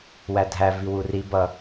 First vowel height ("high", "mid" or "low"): low